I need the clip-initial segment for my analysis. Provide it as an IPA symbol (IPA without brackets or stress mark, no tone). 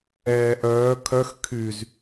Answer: ɛː